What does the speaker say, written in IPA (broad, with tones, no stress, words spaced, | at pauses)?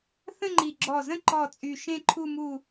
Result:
θə̃˥˧ŋ͡ǃi˧˩ɡ͡ǁɔ˧˩zə̃˥˧ ǃɔ˧˩ t͡sʼy˧˩ ʃẽ˥˧ǃʰu˥˧ mu˥˧